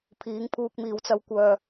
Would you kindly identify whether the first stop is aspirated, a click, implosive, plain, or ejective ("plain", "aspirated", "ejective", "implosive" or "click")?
aspirated